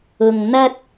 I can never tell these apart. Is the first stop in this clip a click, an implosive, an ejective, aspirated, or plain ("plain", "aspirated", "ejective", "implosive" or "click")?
plain